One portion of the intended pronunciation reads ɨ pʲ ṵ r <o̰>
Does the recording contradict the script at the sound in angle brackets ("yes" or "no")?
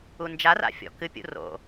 no